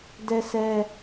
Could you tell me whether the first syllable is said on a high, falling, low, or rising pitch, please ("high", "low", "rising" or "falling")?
high